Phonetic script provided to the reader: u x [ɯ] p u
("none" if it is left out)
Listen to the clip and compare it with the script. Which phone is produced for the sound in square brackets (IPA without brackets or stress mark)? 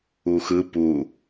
ɯ